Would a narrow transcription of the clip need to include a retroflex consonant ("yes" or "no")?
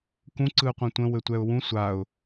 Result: no